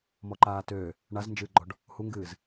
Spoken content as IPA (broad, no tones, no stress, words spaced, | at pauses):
mɔǃaːtøː | ɳaznd͡ʒɨːɡ͡ǃɔɖ | huŋɡɨːz